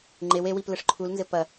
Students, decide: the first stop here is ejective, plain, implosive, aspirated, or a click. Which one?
click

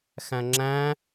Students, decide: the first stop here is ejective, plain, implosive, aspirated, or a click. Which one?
click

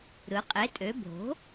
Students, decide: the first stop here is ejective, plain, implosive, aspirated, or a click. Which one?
ejective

